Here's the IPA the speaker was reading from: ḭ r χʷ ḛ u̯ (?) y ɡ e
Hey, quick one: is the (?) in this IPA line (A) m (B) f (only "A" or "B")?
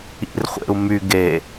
A